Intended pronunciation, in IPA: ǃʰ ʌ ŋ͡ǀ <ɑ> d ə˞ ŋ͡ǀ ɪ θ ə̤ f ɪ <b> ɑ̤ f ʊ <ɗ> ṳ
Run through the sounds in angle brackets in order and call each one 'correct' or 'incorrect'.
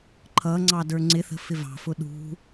correct, incorrect: v, correct

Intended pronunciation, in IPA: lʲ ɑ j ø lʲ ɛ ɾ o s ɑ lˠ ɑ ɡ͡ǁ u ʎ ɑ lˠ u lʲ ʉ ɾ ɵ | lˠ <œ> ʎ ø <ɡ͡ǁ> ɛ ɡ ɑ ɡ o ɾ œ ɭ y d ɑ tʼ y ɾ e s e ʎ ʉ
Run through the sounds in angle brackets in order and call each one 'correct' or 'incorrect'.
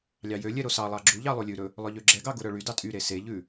correct, correct

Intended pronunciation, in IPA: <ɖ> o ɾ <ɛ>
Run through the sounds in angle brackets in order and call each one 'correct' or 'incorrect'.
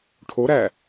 incorrect: ʈʰ, incorrect: æ

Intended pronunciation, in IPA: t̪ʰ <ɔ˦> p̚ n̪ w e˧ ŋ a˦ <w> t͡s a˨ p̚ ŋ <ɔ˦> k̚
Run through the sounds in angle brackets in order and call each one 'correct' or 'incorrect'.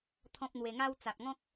incorrect: ɔ̃˦, correct, incorrect: ɔ̃˦

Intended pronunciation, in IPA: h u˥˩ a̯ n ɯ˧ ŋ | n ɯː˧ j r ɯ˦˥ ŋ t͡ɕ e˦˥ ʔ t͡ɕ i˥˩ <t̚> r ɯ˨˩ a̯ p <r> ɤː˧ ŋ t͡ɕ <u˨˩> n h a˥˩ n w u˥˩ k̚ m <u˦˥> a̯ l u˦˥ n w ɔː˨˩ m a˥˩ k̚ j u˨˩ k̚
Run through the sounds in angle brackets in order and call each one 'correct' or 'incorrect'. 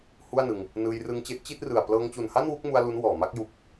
correct, incorrect: l, correct, incorrect: u˧

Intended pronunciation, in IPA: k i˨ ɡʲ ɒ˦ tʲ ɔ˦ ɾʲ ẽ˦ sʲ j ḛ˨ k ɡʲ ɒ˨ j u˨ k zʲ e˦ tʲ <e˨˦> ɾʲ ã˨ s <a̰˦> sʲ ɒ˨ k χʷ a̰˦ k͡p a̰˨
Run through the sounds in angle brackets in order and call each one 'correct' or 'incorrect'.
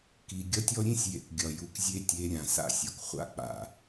correct, correct

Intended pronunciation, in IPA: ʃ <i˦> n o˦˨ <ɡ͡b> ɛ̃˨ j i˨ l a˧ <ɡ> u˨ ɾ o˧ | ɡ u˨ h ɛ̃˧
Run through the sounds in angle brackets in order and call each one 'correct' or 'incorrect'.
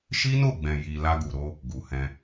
correct, correct, correct

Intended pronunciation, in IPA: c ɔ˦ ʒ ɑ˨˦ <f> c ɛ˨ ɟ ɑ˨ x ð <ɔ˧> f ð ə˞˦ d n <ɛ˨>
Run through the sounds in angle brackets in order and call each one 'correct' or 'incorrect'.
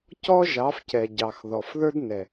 correct, incorrect: ɔ˨, correct

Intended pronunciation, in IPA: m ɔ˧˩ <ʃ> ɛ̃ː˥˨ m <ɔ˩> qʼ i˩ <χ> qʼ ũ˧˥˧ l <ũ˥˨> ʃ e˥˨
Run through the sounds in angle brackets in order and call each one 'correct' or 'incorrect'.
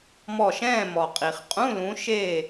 correct, correct, correct, incorrect: ũ˨˦

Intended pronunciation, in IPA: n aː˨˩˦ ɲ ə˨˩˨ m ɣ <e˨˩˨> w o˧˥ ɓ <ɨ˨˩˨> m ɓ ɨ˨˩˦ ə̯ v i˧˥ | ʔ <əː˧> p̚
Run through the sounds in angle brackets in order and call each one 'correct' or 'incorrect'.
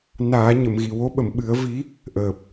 incorrect: i˨˩˨, incorrect: ə˨˩˨, incorrect: əː˨˩

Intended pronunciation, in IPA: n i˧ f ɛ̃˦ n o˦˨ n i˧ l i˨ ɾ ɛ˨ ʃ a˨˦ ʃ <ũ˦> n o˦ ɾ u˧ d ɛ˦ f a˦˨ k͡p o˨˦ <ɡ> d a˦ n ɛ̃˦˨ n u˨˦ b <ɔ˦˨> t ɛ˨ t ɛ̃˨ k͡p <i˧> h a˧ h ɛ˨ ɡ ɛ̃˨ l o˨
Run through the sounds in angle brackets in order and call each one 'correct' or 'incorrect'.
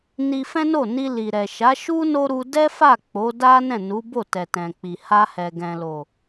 incorrect: u˦, incorrect: none, incorrect: o˦˨, incorrect: i˨

